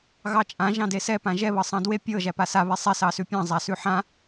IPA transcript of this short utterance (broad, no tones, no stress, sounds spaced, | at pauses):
ɣ ɑ t͡ʃʼ ã ʒ ɑ̃ d e s ɛ p ã ʒ ɛ β ɤ sˤ ɑ̃ d w e pʲ ɤ ʒ æ p a s a β e sˤ ɛ s ɑ s ʉ pʲ ɑ̃ zˤ a s ʉ ħ ã